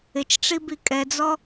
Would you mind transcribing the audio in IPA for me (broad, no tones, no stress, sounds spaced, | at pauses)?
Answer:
ɪ t͡ʃ ʈ͡ʂ i b i kʼ ɛ d͡z ɔ